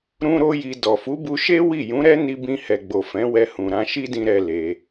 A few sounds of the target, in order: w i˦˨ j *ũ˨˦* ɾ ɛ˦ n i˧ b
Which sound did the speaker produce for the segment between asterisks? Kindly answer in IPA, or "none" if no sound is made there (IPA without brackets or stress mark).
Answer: ũ˨˦